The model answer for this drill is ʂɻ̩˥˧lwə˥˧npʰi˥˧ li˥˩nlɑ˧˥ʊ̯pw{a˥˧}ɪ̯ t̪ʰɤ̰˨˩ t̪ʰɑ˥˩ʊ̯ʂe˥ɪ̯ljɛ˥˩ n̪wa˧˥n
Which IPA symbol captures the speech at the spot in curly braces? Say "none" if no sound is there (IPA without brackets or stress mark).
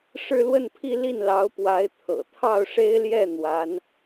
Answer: a˧˥